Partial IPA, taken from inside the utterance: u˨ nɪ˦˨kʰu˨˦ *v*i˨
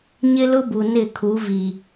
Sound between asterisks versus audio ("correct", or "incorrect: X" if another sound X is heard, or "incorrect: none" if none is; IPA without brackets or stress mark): correct